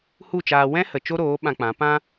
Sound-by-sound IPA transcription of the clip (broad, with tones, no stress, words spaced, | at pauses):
hu˦˨t͡ʃaː˧ wɛ̃˦hə˨ t͡ʃo˦ɾoː˨˦ ɓã˧k͡pã˨˦ pã˧